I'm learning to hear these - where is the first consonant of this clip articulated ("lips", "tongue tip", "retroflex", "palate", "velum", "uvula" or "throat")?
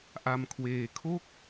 throat